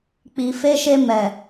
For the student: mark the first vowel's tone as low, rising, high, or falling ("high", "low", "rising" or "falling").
low